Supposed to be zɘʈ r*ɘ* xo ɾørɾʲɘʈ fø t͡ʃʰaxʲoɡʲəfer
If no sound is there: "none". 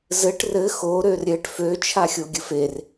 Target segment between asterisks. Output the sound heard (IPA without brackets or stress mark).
ɘ